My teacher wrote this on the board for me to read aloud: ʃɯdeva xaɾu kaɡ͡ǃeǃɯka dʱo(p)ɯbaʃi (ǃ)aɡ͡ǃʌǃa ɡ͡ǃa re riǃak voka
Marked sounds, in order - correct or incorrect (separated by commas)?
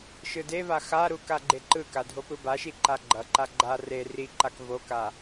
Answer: correct, correct